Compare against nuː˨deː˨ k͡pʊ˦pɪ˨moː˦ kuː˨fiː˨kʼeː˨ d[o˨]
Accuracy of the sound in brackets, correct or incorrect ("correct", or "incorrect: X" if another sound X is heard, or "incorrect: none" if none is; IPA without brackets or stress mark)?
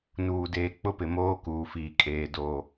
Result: incorrect: oː˨